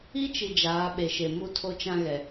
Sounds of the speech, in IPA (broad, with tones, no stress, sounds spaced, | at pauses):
i˦ t͡ʃ i˨ d͡ʒ aː˨˦ ɓ e˨ ʃ e˨ m u˦ tʰ o˦ t͡ʃ ã˦ ɣ ɛ˨